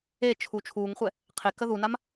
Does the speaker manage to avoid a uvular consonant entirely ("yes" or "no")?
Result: no